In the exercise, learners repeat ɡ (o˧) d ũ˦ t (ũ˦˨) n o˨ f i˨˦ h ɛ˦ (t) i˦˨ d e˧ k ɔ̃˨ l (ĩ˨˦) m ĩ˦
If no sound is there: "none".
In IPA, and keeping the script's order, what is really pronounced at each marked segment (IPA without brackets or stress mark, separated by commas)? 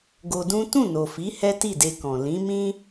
o˧, ũ˦˨, t, ĩ˨˦